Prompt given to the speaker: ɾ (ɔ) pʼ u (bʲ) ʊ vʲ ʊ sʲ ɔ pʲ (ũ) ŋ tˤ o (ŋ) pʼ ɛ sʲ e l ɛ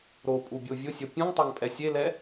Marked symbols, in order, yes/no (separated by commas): no, yes, yes, yes